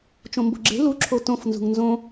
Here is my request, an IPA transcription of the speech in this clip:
t͡ʃ õ m b o̤ ɡ͡ǁ e̤ l u ǁʰ o t õ f n z ṳ ŋ n z õ

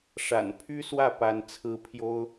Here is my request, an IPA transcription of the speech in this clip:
ʂ a̰˨˩ n pʰ y˥ s w ä˥˩ p a˥ n t͡sʰ ɹ̩˥ pʰ j o˥ ʊ̯

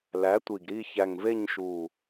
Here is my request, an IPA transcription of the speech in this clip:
l æ˩˥ tʷ i˨˩ ɡ ɾ i˦˨ ç æ˨˩ ŋ v e˦˨ ɲ ʃ u˨˩

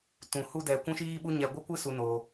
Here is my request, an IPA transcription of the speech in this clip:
t ũ˨ h u˦ d ɛ˧ kʷ ũ˦ ʃ iː˦ ɓ u˦ ɲ ɛ˧ ɡʷ ɨ˦ kʷ ɨ˦ s u˧ n oː˧

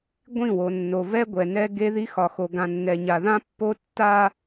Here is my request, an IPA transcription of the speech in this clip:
ɡʷ ĩ˦˨ w o˨ nː o˨ v ɛ˦ ɡʷ ɛ˨ n ɛ˦ ɡ e˦ ð i˦ x ɒ˨ x o˨ ɡ ã˨ nː ɛ˨ ɲ a˨ ð ã˦ pː o˦ tː a˦

